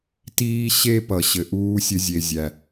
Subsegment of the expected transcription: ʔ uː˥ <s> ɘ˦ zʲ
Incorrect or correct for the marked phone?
incorrect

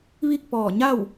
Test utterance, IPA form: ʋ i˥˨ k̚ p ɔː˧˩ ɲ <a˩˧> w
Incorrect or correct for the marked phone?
incorrect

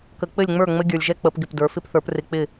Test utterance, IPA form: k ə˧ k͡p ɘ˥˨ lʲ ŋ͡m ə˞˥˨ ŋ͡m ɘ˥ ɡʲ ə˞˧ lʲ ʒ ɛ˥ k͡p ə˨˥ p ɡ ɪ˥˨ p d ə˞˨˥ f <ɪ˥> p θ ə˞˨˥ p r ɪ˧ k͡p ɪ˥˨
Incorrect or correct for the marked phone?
correct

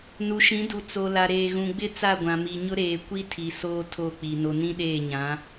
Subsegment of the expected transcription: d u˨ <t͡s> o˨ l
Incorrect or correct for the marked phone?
correct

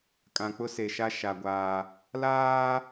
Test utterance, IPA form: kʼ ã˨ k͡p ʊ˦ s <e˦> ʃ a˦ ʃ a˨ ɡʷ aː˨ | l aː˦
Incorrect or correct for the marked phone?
incorrect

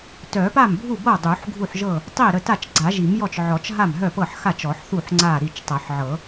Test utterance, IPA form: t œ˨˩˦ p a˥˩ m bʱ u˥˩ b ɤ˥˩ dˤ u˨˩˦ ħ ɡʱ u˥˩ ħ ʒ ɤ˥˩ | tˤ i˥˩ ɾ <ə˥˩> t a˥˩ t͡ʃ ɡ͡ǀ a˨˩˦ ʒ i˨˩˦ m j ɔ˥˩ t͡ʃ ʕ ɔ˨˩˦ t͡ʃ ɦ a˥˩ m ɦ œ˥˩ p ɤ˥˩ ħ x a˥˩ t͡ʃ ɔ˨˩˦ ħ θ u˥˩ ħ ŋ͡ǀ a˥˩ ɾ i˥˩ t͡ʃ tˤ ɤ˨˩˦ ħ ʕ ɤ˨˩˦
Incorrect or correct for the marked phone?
correct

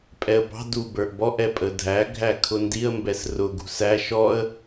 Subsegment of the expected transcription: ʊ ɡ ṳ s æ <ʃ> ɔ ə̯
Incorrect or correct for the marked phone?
correct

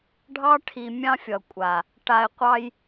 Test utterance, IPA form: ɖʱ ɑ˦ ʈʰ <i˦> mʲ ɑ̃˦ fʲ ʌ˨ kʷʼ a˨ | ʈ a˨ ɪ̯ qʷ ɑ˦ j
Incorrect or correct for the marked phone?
incorrect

